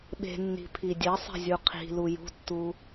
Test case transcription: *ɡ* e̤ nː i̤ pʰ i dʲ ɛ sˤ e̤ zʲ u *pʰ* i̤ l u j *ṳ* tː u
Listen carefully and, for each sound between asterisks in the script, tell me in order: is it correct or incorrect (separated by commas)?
incorrect, incorrect, correct